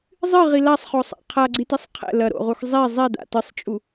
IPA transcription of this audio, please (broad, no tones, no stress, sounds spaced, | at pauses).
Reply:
zˤ ɨ ʁ i l a sˤ χ o sˤ a̰ qʰ a ɡ͡ǀ i t i sˤ qʰ ɛ̰ l ɐ ɾ o̰ ʁ u x zˤ i zˤ e d a̰ t ɨ sˤ t͡ʃʼ u